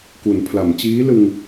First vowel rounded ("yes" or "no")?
yes